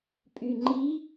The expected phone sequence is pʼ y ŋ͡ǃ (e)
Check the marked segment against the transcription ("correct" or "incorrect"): incorrect